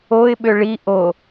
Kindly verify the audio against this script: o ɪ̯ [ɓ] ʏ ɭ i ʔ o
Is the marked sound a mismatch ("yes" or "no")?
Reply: no